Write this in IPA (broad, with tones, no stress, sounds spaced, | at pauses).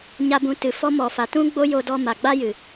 ɲ a˧ b ũ˨˦ t ɨ˨ f ɔ˦ m ɔ˧ f a˧ t ũ˦ ɡ͡b o˦ j o˧ d ɔ˧ m a˨ ɡ͡b a˦ j ɨ˨